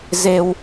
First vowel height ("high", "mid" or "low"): mid